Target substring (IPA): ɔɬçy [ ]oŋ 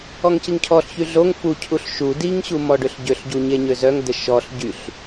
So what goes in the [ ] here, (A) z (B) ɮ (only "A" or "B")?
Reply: B